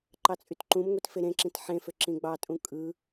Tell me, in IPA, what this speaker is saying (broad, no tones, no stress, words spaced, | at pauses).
ǃɑt͡sʼytǃũmŋʷit feɾẽǁĩt ħẽfø ǁĩɡ͡bɑtʼũ kʼɯ